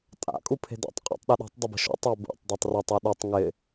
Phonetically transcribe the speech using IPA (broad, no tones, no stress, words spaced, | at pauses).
tʼa̰ kʼupʰe̤da̰tˤ qʼo̰tˤɗaɗɔ̤tˤ dˤʊbə̤ʃo̰tˤ abṵtˤ dˤatˤratˤ ɔɗutˤ ŋɪ